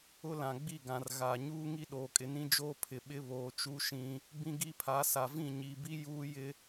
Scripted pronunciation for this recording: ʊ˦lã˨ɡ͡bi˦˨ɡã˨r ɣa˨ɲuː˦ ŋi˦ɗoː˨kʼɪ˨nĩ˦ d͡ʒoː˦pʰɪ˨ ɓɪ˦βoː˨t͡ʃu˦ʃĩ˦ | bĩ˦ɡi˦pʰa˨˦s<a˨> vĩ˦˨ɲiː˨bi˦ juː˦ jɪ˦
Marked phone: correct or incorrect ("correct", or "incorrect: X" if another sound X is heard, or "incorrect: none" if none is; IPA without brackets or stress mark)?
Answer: correct